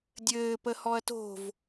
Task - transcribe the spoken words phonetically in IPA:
dʲɘː pəhɔɐ̯to̤v

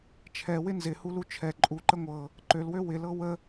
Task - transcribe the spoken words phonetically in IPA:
t͡ʃʰɛwɪ nzɪhulu t͡ʃʰɛ ǃʼuǃə ŋʷɤ | ǃølwø wɪlɤ wə

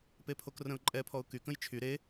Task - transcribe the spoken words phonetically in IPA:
pepʰokrə̃ʊ̯ǃʼɛ pʰɔʊ̯ky kə̃jt͡ʃʰy ɾe

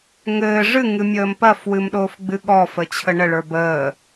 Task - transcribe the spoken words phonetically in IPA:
ŋɘː ʐɨŋɨ mʲəːmpɐfwɨmɗoːf ɡ͡bɨɠɔ fət͡ɕʰəɳəɭə˞ bəː

